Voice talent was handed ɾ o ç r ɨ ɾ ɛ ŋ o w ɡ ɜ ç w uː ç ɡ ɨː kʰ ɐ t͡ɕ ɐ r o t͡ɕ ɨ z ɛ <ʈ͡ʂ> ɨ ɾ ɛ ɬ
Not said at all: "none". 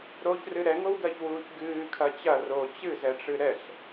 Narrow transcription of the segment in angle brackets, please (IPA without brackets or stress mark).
ʈ͡ʂ